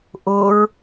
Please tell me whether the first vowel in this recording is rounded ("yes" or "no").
yes